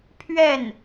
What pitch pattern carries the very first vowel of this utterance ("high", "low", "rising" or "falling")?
falling